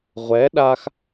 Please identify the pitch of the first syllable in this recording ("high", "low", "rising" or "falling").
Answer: rising